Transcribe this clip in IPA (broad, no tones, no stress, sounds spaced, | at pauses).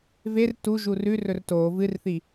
v e r t u ʒ u r ʉ r ɵ r t o v ɨ r θ i